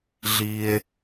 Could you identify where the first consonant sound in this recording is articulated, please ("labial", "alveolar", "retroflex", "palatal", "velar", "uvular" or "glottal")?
alveolar